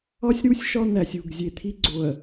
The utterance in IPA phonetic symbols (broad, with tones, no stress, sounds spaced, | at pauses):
ɒ˦ sʲ ɾ u˦ sʲ ʃ ɒ˦ n̪ æ˨ sʲ u˦˨ ɡ zʲ e˨ t̪ʰ i˦ ɡ͡ǀ o˨ ɐ̯